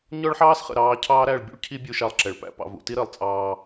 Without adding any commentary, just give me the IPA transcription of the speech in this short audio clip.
ɲ ɔ˦ ɭ ħ ɑː˦ s χ ə̰˨ ɾ ɑː˦ cʰ ɑː˦ ɾ æ˦˨ ɭ bʲ ṵ˦ ɭ cʰ i˦ bʲ u˦ ʃ ɑ˦ lˠ ǁ ɛ˨ ɭ p æ̰˦ p ɑ̰˨ v ṵ˨ t i˦ ɾ əː˨ lˠ t͡sʼ ɑː˦

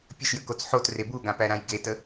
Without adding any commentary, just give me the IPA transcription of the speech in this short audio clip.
pʲ ə ʃ j ə k o t͡s ħ o t r e b u ɡ ã p æ ɾ ã j ɡ e t ə

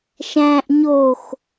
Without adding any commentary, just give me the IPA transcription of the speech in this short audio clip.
ʃ æ̃ ʔ ɲ o x

